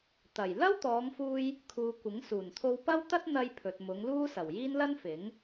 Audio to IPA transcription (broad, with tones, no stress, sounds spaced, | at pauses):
t̪ ɐ˨˩ j l ɐ˥ w t̪ ɔː˨˧ ŋ f uː˧ j | kʰ uː˨ kʷ ɪ˨˥ ŋ s uː˨˩ n t̪ʰ o˧ w p ɐ˥ w t̪ ɐ˥ t̚ n̪ ɐ˧ j pʰ ɵ˨ t̚ m ʊ˨˧ ŋ l uː˥ s ɐ˨˩ w j iː˥ n l ɐ˥ n f ɪ˨˥ ŋ